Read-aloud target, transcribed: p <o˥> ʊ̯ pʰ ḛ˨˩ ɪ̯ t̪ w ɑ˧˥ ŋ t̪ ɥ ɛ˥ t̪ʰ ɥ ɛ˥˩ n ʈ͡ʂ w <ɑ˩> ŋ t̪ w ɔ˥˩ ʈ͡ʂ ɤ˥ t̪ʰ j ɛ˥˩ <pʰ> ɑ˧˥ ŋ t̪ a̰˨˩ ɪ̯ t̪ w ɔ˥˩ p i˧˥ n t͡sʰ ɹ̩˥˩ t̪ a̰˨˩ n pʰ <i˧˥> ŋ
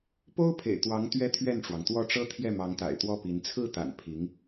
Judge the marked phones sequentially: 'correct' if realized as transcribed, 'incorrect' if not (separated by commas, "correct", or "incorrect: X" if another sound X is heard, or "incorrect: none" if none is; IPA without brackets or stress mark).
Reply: correct, correct, incorrect: m, correct